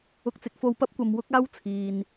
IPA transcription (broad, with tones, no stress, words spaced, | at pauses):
ʊ˧k̚t͡sɪ˨˥k̚ fo˧wpɐ˥p̚ kʷɐ˨mwʊ˥k̚aː˥w t͡sʰiː˨n